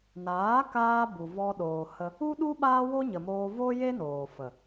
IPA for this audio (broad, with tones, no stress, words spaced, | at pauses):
naː˨˦kaː˧ bu˨vɔ˧ɗoː˨hə˧ | u˦ɗu˦ ɓaː˦wo˦ɲə˨ moː˧vo˦ je˦noː˨fə˨